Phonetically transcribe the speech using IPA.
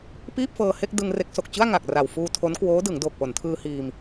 p iː˥˩ p̚ f ɤː˧ h e˥˩ k̚ d ɯ˧ ŋ r e˦˥ k̚ s o˨˩ k̚ t͡ɕ ɯ˥˩ a̯ ŋ a˨˩ k̚ r a˨˩ w f uː˧ tʰ o˦˥ n k w oː˦˥ d ɯ˩˦ ŋ d oː˨˩ k̚ p o˩˦ n tʰ ɯː˧ h iː˧ m

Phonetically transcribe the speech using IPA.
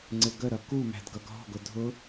ŋ͡ǀ ɪ ɡ ə ɾ ʌ k u m æ̤ d ɡ ʌ ɡ ɦ ɔ̤ ɡ ʊ dʱ ʊ

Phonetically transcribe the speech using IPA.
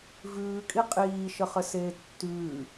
v ʉː kʼ i qʼ iː ʃ ə χ ə s eː tː ʉː

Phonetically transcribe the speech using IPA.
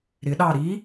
ɾ ɪ ɗ ɑ ɾ i

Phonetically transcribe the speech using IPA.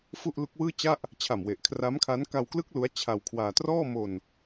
f u˥˩ ʔ l u˦˥ k̚ w ɯː˥˩ t͡ɕ a˥˩ ʔ | t͡ɕʰ a˨˩ m w e˨˩ ʔ kʰ r a˦˥ m kʰ a˦˥ n k a˧ w k l ɯ˦˥ k̚ l u˦˥ a̯ t͡ɕʰ a˧ w kʰ w aː˧ t r ɔː˥˩ m o˧ n

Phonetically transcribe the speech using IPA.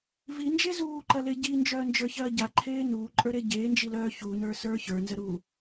v i n d͡ʒ e z uː ǃ ɐ l e ɟ i n d͡ʒ œː n d͡ʒ ə˞ ç ɐː ɟ a ǃʰ eː n uː ǃʼ ə˞ ɾ e ɟ eː n d͡ʒ i l œː ç u n ə˞ s ə˞ ç ə˞ n z ə ɾ uː

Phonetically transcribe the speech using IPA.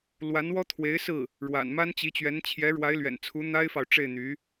l w a˧˥ n w ɔ˥ t̪ʰ w e˧˥ ɪ̯ s ɹ̩˥˩ | ɻ w a̰˨˩ n m a˥ n t͡ɕ i˧˥ t͡ɕ ɥ ɛ˧˥ n t͡ɕʰ j ɛ˧˥ ɻ w a˧˥ ɪ̯ l ɥ ɛ̰˨˩ n t͡sʰ u˧˥ n̪ a˥ ɪ̯ f ɑ˨ ʊ̯ ʈ͡ʂ e˥˩ ɪ̯ n̪ y˧˥

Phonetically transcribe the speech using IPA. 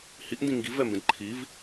h i ʔ n d ĩ ŋ ɡ i v ɛ m b ẽ d ǃʰ i v

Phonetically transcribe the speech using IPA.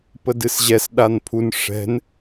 p ə d ɨ s ʑ ɛ s ɗ a n pʰ u n ʂ ɛ̤ n

